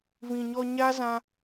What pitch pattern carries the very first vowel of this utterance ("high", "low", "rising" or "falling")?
low